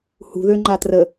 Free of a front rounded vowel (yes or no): no